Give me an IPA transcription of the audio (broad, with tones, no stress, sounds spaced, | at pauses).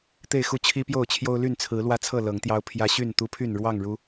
t̪ e˥˨ ɪ̯ x u˥˨ t͡ɕʰ i˦ p j o˥˨ ʊ̯ t͡ɕʰ j o˦ ʊ̯ l y˥˨ n t͡sʰ ɹ̩˨˦ l w ä˦ t͡sʰ ɤ˥˨ l ɤ˨˦ ŋ t̪ j ɑ˦ ʊ̯ pʰ j ä˦ ɕ y˥˨ n t̪ u˦ pʰ y˥˨ n ɻ w ɑ˥˨ ŋ ɻ u˨˦